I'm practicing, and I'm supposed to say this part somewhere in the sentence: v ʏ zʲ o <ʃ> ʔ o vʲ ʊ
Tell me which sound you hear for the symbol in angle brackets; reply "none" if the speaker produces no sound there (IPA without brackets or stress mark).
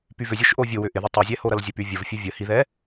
ʃ